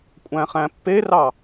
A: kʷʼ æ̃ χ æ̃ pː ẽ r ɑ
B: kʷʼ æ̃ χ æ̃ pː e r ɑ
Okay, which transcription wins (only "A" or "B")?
B